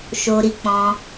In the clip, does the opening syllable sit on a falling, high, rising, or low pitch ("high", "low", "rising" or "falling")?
high